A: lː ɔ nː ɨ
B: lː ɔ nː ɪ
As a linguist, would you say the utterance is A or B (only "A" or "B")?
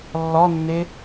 B